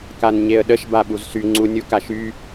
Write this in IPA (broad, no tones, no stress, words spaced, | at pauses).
kanɲeə̯ɗəʃ baɓuzsy ŋ͡ǀunʲukaʃy